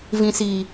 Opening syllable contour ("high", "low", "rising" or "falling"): low